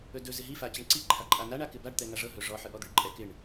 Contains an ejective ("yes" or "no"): yes